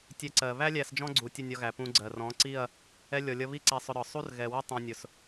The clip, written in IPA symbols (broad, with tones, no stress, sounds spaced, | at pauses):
tʲ ɛ˧ ǀ ɜ˨ β æ˦ lʲ æ˧ s d͡ʒ ɔ̃˦ ɡ͡ǀ u˨ tʲ ə˦˨ nʲ ɒ˧ ɣ æ˨ p ũ˧ ɡ͡ǀ ɜ˨ r ɔ̃˨˦ ǀ i˦˨ ɐ̯ | ɛ˧ lʲ ɔ˨ lʲ ʌ˧ β i˦ ǀ æ˧ sˤ ʊ˧ ɾ ɒ˨ sˤ u˦ r ɣ ɛ˨ w ɪ˦ tˤ ũ˨ nʲ ʊ˨ s